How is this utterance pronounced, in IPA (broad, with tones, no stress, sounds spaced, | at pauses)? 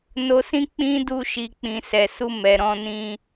n o˧ s ĩ˦ k͡p ĩ˦ d u˦ ʃ i˧ k͡p ĩ˨ s ɛ˨ s u˧ m ɛ˨ ɾ ɔ̃˧ n ĩ˧